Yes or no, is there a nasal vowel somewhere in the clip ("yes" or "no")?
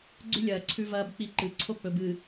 no